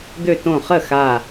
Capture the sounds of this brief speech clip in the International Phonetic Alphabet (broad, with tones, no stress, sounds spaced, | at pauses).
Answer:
d̪ ø˧˩ t õ˧˩ χ ə˥˩ x a˧˩